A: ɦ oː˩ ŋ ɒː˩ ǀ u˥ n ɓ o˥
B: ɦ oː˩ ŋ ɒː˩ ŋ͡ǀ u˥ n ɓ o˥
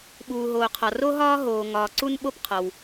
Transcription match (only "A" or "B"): A